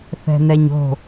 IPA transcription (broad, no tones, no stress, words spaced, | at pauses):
θɛ̤nɛɲo̤